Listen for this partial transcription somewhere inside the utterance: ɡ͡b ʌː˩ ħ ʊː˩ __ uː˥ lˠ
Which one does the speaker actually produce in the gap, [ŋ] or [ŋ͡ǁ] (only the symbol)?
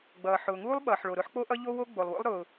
ŋ